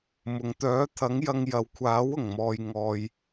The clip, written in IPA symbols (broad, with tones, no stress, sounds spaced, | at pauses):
m ʊ˨ ŋ t̪ œː˨˥ t̪ʰ ɐ˨˥ ŋ j ɐ˧ ŋ j ɐ˨ w kʷʰ aː˨˥ w ʊ˨˩ ŋ m ɔː˨ j ŋ ɔː˨ j